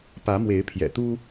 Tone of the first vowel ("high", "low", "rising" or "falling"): rising